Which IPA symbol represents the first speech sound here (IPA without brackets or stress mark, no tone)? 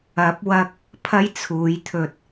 ɐ